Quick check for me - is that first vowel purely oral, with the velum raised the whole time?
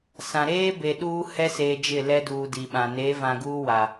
no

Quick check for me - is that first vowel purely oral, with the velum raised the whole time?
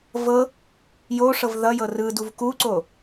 yes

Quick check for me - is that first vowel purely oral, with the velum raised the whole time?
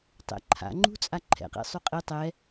yes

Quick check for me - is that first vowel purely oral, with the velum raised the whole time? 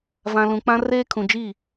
no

